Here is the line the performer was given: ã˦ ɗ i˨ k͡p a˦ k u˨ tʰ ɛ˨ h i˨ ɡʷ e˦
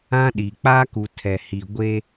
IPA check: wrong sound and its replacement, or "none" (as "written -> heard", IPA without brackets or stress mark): none